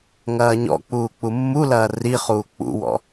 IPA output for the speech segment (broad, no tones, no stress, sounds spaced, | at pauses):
ŋ ɐː ɲ ɔ̰ k͡p uː k͡p u mː u l ɐː r i χ uː k͡p ṵ w ɔ̰